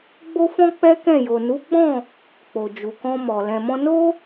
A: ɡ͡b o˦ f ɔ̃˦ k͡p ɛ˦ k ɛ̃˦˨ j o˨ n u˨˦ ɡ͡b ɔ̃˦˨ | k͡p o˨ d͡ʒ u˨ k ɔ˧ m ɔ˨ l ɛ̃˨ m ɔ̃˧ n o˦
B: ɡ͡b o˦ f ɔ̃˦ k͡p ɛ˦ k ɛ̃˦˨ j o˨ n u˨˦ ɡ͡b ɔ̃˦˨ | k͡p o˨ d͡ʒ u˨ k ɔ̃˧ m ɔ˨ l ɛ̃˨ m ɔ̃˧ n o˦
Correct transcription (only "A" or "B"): B